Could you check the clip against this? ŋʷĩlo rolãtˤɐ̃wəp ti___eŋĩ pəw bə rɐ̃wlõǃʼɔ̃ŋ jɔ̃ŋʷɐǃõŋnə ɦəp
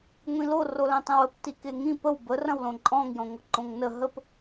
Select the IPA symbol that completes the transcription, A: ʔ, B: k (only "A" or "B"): B